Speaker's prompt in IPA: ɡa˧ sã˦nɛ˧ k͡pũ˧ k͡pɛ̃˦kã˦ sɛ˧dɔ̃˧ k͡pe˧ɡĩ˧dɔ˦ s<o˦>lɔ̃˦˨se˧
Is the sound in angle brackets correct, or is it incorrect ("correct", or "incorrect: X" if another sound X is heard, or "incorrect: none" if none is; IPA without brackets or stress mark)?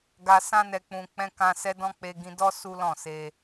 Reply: incorrect: u˦